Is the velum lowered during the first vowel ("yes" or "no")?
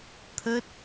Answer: no